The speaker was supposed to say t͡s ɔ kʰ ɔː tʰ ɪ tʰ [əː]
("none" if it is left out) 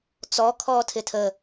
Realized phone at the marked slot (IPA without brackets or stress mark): əː